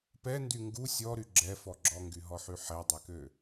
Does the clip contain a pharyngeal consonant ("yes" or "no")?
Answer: yes